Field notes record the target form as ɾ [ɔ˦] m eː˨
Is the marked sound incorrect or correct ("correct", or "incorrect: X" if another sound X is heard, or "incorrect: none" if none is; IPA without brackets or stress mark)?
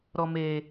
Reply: incorrect: ɔ˨